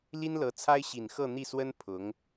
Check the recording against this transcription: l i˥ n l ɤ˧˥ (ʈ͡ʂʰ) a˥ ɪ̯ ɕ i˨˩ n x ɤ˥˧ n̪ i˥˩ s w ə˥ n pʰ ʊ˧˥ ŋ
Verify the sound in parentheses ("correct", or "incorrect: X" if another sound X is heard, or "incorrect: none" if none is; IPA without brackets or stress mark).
incorrect: t͡sʰ